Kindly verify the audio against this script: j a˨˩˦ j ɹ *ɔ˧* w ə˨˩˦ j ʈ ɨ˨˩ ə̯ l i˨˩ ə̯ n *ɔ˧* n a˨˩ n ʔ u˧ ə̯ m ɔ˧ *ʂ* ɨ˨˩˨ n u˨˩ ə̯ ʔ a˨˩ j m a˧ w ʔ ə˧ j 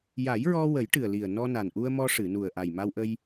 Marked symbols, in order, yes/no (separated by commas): yes, yes, yes